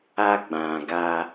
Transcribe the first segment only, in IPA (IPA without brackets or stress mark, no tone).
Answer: a